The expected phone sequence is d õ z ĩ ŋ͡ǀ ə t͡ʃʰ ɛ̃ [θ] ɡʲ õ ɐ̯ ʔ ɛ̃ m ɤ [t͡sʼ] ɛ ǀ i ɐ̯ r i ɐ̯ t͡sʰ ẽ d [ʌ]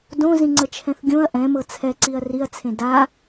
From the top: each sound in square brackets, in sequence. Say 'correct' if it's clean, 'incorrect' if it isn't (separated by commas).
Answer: correct, incorrect, incorrect